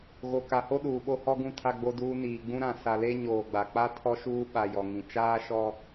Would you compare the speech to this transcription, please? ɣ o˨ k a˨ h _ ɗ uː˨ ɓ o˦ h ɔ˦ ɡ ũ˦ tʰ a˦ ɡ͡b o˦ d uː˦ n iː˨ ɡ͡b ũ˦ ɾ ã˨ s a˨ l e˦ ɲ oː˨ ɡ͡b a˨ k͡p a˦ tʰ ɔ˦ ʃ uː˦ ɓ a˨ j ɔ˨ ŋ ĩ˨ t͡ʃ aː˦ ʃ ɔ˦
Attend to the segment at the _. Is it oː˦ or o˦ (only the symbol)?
o˦